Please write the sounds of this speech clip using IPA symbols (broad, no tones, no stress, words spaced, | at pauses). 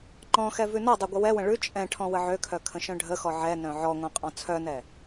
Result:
ŋ͡ǃɔ̃xɛ vʉnɔdˤʉ ɡʷəwɛwə̃ ɭʉ t͡ʃʼɛ̃ʈʰɔ̃ wəʕøkʰœ kʰə̃ʃœ̃ɖʱəxɔ ʕɛ nœ̃ʕɔŋʷɛ̃ qʼɔ̃t͡sʰœnɛ